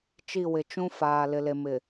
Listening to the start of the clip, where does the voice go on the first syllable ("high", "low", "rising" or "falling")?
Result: falling